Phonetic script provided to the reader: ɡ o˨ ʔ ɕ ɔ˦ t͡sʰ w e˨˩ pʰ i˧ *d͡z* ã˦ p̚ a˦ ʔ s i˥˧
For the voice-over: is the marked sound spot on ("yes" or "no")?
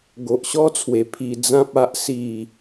yes